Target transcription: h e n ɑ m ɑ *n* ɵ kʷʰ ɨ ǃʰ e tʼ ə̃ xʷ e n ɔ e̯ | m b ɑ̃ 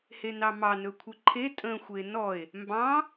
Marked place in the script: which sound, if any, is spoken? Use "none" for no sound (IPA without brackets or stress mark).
n